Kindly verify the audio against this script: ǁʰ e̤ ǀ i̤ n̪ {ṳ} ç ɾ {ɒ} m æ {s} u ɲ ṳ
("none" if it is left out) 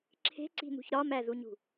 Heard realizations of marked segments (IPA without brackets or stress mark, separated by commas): ṳ, ɒ, z